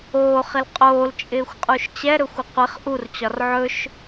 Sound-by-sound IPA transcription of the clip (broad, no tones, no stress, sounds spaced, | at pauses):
oː χ ɪ l qʼ oː l t͡ʃʼ ɪː xʷ qʼ u ʃ t͡ɕ ɛ ɾ ɵ xʷ ə qʷ ɪ χ ʔ u r t͡ɕ ɒ r ʕ ɵ ʃ